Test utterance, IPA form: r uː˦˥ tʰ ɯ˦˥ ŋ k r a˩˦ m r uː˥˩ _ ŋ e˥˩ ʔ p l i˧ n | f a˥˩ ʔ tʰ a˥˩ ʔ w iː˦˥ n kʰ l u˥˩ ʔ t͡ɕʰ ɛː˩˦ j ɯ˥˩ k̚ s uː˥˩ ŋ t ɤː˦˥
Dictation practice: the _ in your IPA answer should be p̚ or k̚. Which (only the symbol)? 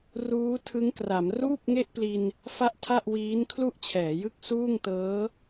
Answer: p̚